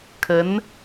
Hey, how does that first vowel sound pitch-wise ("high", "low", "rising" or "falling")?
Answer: rising